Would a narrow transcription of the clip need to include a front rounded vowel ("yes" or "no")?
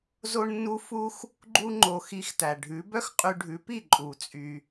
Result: yes